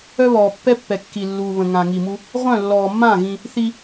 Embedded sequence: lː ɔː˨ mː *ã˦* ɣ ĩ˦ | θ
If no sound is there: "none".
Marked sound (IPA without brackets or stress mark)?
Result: ã˦˨